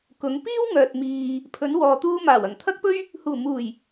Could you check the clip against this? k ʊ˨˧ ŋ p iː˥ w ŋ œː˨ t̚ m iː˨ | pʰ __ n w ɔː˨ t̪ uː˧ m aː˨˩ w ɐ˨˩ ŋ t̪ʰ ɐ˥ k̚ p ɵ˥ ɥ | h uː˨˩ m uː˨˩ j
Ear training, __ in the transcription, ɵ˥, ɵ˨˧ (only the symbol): ɵ˨˧